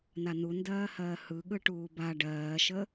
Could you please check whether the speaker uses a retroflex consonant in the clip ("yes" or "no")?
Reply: yes